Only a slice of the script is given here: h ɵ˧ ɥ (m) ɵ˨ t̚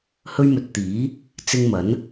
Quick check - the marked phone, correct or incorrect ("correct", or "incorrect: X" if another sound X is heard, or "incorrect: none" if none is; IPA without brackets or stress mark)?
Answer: correct